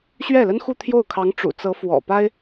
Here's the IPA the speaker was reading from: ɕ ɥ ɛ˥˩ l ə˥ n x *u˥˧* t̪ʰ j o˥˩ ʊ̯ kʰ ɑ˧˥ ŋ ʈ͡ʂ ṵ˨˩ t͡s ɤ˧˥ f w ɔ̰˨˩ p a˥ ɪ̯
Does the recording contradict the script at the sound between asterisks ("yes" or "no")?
no